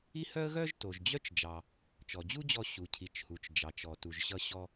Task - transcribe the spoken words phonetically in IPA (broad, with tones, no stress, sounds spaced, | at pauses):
i˥ h œ˥ ə̯ ɣ œ˥ ʒ t o˩ ʒ d͡ʑ œ˥ t͡ʃ d͡ʒ ɑ˩ | t͡ʃ ɔ˩ d͡ʑ u˥ d͡ʑ ɔ˧ ɕ u˩ cʰ i˩ t͡ʃ h u˩ t͡ʃ d͡ʒ ɑ˩ t͡ʃ ɔ˩ t u˩ ʒ ɕ ʌ˧ ɕ ɔ˧